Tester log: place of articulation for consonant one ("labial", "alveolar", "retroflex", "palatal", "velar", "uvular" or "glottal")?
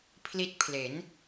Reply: labial